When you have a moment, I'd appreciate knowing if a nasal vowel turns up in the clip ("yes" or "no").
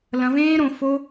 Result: yes